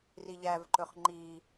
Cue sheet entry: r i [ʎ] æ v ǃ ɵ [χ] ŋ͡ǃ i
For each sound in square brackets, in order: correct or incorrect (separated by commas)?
correct, correct